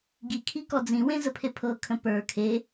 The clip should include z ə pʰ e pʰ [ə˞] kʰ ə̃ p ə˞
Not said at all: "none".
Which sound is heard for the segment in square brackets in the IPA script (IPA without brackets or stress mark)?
ɤ